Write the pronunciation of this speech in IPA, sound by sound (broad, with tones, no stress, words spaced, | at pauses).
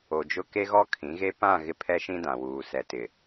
o˨d͡ʒʊ˦ ke˦ɣɔ˦ kʰĩ˨˦ɣe˦ pã˦˨ ɣɪ˦pʰɛ˦ʃĩ˦dã˨ wuː˨ sɛ˨tɪ˨